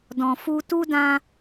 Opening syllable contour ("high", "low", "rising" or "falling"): low